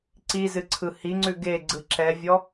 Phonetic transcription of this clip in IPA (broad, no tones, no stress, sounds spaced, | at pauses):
ǀ i z ɨ ǀʰ ɯ h i ŋ͡ǀ ʉ ɡ e ɡ͡ǀ ɯ ǁ ɛ vʲ ɔ